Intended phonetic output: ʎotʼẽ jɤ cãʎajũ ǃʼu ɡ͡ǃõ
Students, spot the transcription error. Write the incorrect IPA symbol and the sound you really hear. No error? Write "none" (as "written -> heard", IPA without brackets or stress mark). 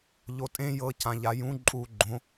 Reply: none